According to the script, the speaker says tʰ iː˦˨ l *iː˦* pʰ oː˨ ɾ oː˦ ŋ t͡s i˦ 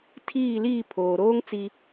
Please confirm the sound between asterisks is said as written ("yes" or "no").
no